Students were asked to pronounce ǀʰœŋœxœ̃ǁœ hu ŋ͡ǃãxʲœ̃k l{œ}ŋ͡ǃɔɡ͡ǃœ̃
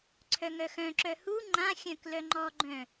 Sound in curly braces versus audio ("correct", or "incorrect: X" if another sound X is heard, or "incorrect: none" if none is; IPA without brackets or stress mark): correct